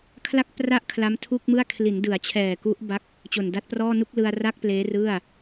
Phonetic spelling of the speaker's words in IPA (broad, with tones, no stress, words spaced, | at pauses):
kʰla˥˩k̚pra˥˩ʔ kʰla˦˥mtʰuː˥˩k̚mɯ˥˩a̯ kʰli˩˦ndɯ˩˦a̯t͡ɕʰɛː˨˩ ku˦˥ʔba˦˥k̚ | t͡ɕo˨˩nda˦˥t̚prɔː˥˩ nu˥˩k̚lɯ˧a̯ra˥˩k̚ pleː˦˥rɯ˥˩a̯